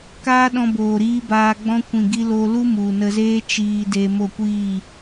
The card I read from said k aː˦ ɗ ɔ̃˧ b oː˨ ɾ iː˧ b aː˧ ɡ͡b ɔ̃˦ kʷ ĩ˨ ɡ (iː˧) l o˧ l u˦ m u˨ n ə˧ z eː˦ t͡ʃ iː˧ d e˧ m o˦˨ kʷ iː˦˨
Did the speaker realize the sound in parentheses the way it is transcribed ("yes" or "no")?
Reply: no